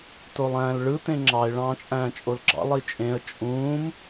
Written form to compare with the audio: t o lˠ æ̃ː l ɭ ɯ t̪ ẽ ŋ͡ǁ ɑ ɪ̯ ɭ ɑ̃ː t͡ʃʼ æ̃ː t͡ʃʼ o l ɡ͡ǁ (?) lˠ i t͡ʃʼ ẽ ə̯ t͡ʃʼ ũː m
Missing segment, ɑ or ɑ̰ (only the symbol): ɑ̰